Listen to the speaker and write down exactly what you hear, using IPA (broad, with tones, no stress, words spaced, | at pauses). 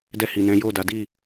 dɛ˧hi˨ nɛ̃˨˦jo˦˨da˨˦ di˦˨